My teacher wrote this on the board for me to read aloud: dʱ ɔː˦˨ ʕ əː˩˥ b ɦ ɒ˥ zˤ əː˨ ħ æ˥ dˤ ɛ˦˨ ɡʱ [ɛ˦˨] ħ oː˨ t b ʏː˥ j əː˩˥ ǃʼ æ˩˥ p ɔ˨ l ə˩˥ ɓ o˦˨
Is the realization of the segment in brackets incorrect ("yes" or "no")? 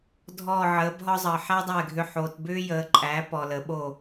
yes